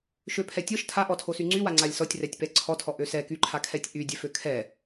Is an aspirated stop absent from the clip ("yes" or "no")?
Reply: no